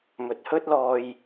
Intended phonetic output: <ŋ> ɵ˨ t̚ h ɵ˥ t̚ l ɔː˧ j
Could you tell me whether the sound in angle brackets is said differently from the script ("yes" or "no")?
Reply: yes